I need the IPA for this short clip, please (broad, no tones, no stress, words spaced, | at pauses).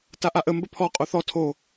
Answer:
taʔaʔə mbəpʰɔ qʼoθɔ tʰo